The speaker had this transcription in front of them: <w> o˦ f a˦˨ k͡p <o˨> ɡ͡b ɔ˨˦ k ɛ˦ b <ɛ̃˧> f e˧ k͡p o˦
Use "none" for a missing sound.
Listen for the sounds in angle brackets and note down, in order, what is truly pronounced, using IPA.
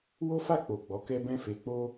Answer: w, o˨, ɛ̃˦

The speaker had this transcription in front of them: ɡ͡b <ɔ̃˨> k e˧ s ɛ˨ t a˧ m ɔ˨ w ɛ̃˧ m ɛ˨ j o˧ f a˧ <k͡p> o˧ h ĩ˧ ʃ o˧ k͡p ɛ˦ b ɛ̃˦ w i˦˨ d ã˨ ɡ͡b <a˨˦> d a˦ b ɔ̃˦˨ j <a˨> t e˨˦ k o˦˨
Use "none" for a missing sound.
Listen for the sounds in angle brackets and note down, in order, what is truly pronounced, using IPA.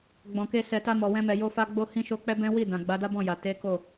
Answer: ɔ̃˨, ɡ͡b, a˨˦, a˨

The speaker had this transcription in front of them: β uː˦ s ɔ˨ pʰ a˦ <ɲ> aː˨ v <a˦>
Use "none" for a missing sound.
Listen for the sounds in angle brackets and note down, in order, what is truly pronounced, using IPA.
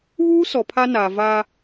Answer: n, a˦

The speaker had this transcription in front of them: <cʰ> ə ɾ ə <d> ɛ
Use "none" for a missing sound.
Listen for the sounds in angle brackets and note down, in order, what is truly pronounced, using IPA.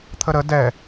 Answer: t̪ʰ, d

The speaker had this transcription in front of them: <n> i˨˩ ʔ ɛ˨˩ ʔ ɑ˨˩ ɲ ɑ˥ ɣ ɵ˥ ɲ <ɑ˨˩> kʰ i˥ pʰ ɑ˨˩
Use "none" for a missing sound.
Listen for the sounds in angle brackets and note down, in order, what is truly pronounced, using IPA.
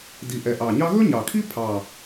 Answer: d, ɑ˨˩

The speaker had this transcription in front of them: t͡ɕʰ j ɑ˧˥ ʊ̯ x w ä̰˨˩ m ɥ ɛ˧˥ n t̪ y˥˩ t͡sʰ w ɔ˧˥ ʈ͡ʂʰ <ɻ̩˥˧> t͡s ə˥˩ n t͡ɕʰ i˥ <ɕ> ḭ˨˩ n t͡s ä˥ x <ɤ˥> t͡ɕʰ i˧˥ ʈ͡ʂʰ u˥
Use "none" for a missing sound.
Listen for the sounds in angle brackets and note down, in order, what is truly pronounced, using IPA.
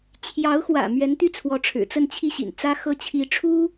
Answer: ɻ̩˨˩, ɕ, ɤ˥

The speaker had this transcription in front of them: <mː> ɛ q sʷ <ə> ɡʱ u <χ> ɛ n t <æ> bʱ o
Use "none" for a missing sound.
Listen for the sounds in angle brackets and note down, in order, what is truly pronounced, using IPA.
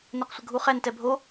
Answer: n, ə, χ, ɛ

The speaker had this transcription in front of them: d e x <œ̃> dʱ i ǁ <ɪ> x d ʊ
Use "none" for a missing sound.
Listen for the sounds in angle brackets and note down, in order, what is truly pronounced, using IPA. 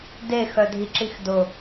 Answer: œ, i

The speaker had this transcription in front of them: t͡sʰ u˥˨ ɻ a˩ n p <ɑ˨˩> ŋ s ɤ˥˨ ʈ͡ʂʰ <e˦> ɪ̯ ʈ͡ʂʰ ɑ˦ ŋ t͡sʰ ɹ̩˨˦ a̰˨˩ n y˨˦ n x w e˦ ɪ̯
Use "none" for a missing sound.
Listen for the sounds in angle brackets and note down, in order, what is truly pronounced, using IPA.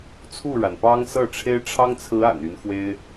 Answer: ɑ˦, e˦

